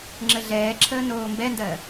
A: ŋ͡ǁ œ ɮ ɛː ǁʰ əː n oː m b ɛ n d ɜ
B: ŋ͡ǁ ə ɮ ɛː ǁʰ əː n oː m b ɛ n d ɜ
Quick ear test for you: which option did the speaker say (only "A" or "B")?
B